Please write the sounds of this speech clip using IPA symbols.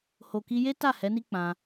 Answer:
ho˨ki˧je˦ ta˦˨ hɛ˨˦ni˦ k͡pã˧

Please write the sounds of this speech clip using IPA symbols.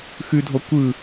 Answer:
xʉdʱɔ kʷɯ

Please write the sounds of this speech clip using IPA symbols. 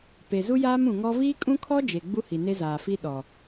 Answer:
pe˨ zu˦jaː˦mũ˨ŋɔ˦ viː˦kʼũ˦kʰɔ˦ d͡ʒe˨ɡ͡bu˦hi˨ ne˦zaː˨fi˦ ɗɔ˨

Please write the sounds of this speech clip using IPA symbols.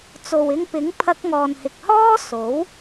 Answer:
t͡so˨wɪ˧ŋpɪ˨˥ŋ pʰɐ˧k̚ŋɔː˨nhɪ˨k̚hɔː˥ so˨˥w

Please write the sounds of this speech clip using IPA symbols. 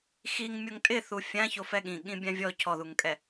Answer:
xiŋ mʲoŋtʼɪθu fʲã çofɛɠĩ ɠĩbʲãvʲɔ cʰɔðuŋkʼɛ

